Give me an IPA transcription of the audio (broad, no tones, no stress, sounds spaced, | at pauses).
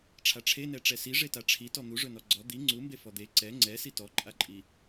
ʈ͡ʂʰ a ʈ͡ʂʰ e n ɛ ʈ͡ʂ ɛ s i ʐ e t a ʈ͡ʂʰ i t ɔ n̪ u ʐ ɵ n ɔ ɡ͡ǀ ɔ d̪ i ŋ͡ǀ u m b e f ɔ d̪ e ǀ ɛ ŋ͡ǀ ɛ s i t ɔ ǃʼ a ǃʼ i